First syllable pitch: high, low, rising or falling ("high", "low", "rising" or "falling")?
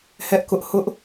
high